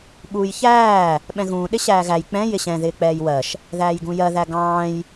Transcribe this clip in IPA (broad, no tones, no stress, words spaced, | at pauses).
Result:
ɓuːjçæː | ɓɛ̃ɣũː ɗɪɕæːɣæj k͡pɛ̃ jɪɕɛ̃ ðɪːk͡pɛːjwɜʃ | ðæːjɡũjɜ ðæɡɑ̃ːj